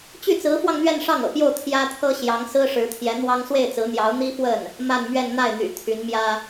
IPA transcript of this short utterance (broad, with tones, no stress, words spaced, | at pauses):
t͡ɕy˥˩t͡sɹ̩˧˥fwɑ˧ŋ n̪ɥɛ˥˧nʂɑ˥˩ŋɤ̰˨˩pjo˥˩ʊ̯ t̪ʰjä˥t̪ʰɤ˥ ɕjɑ˧˥ŋsɹ̩˥ʂɻ̩˧˥t̪ʰjɛ˧˥ n̪wɑ˥ŋ swe˥˩ɪ̯t͡sɹ̩˧˥n̪jɑ˧˥ʊ̯ n̪i˥fwə˥˩n | ma˥˧nmɥɛ˥˧n n̪a˥˩ɪ̯n̪y̰˨˩ t̪ʰy˧˥nmjä˥